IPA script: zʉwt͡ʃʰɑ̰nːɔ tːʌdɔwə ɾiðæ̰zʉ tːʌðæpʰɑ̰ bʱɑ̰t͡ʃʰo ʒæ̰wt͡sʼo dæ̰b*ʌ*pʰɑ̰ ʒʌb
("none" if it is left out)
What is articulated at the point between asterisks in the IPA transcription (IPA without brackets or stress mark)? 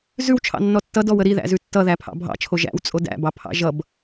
ɑ